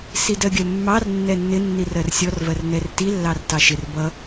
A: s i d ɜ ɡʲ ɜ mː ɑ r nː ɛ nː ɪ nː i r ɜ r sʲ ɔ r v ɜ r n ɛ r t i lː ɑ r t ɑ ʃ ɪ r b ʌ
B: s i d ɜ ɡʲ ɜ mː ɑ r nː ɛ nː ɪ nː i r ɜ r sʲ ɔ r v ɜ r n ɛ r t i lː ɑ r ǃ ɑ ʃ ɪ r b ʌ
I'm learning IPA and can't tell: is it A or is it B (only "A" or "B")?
A